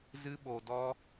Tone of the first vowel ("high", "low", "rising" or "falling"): high